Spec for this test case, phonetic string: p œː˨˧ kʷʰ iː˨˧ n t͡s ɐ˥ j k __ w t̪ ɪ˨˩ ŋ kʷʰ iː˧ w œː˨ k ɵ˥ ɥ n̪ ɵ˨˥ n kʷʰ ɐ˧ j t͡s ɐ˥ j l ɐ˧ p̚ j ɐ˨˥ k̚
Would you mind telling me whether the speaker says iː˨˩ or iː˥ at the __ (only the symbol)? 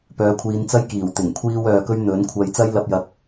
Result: iː˨˩